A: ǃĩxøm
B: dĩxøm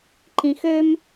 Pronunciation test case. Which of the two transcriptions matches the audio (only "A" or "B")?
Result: A